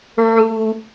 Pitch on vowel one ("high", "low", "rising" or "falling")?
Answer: high